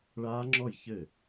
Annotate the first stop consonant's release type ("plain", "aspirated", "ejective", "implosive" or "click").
click